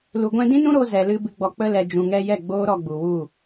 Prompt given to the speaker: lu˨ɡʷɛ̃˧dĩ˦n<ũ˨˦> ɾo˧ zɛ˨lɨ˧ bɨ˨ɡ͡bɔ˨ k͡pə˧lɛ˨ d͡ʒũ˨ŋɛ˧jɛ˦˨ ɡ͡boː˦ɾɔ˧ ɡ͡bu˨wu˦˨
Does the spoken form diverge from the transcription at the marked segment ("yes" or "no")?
yes